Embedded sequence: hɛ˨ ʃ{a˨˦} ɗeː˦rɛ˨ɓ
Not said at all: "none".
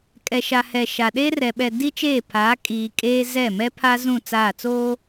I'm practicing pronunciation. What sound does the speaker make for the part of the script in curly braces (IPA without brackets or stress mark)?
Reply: a˨